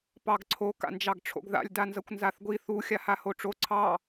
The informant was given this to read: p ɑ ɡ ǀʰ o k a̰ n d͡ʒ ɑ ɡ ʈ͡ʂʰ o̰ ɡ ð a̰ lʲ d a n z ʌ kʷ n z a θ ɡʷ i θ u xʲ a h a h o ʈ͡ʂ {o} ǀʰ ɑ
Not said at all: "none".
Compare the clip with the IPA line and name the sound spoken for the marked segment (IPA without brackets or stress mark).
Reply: o